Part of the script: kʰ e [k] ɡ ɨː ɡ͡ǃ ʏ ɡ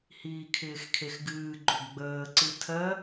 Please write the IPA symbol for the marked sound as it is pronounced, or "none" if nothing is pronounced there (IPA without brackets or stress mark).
x